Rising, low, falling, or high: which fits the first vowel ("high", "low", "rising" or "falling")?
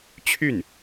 falling